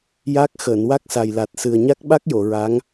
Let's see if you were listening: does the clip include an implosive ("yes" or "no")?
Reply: yes